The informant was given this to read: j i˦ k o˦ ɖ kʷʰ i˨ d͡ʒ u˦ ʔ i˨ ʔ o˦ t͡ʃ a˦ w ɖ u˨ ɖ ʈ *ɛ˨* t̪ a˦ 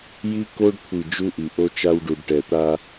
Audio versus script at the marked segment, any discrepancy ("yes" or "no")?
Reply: no